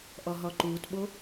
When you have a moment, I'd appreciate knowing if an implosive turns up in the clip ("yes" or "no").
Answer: yes